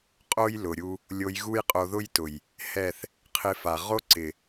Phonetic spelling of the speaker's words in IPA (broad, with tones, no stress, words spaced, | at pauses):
qʼo˦j lʊ˨ɾʲu˧ | lʲo˧j ɣu˦jqʼo˧ðʊ˦jtʊ˨j | hɛ˦˨θ | qʰɪ˧fa˨ ʁo˦ǀɪ˨